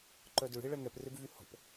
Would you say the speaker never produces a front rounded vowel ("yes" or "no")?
no